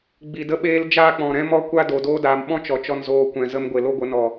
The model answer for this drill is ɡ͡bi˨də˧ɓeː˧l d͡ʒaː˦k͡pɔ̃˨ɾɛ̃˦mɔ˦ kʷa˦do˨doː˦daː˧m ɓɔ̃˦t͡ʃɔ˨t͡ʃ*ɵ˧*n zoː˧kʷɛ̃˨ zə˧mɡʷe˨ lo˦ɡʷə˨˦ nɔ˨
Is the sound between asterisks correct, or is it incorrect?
incorrect: ɔ˧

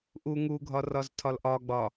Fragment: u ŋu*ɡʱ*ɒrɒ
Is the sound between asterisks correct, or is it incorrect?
correct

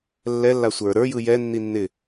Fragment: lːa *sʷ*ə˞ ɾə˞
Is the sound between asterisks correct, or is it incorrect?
correct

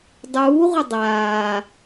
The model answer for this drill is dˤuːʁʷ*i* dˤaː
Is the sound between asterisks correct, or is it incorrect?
incorrect: ɪ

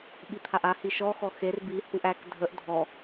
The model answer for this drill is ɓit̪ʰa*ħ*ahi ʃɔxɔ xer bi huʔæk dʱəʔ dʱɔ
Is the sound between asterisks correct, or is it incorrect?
incorrect: ʔ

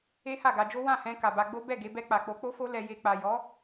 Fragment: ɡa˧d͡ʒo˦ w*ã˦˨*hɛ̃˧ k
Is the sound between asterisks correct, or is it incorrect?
correct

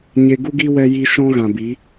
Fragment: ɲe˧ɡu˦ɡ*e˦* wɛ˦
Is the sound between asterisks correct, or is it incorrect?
incorrect: i˦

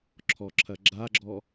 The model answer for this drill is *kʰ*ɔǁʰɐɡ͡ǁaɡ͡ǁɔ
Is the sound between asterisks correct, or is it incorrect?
incorrect: ǁʰ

